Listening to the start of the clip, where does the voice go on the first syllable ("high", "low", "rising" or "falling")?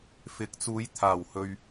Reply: rising